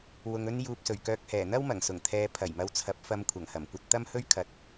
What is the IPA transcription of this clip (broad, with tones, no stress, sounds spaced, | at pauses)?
w ʊ˨ ŋ ɵ˥ n j uː˨ p̚ s ɵ˨˩ ɥ k œː˧ k̚ h ɛː˨˩ n̪ ɐ˥ w m ɐ˨˩ ŋ s ʊ˨˩ ŋ t̪ʰ ɛː˨˧ pʰ ɐ˨˩ j m ɐ˧ w t͡sʰ ɐ˨˥ p̚ f ɐ˧ m kʷʰ ɐ˨˩ ŋ h ɐ˨˩ m kʷ ɐ˧ t̚ t̪ ɐ˥ m h ɵ˥ ɥ kʰ ɐ˨˥ t̚